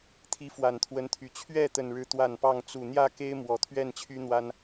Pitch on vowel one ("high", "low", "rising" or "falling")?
rising